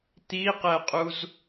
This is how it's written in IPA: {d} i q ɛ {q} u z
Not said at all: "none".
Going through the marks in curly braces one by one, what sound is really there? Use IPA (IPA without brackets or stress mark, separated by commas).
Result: t̪, qʼ